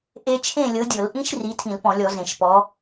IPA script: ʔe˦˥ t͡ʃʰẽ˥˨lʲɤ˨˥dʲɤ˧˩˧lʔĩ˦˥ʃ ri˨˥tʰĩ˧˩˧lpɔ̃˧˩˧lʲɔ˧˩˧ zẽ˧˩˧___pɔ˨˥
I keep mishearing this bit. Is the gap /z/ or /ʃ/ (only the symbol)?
ʃ